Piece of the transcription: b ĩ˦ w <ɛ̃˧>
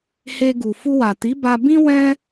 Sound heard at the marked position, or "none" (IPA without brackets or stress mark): ɛ̃˦